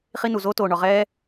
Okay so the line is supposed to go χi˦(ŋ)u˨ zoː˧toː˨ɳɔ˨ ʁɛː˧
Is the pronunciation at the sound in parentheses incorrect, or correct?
incorrect